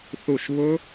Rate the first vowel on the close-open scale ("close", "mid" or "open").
close